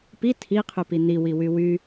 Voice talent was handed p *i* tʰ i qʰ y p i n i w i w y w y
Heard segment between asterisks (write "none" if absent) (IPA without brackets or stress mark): i